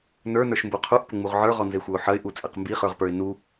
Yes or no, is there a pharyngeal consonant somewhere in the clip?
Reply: yes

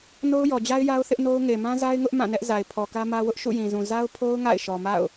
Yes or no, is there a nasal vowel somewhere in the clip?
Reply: yes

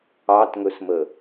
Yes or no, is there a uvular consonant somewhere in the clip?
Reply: no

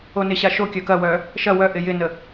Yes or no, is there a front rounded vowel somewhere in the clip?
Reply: yes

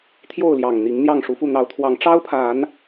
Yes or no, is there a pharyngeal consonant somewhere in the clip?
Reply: no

